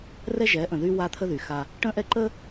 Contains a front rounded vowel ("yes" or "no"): yes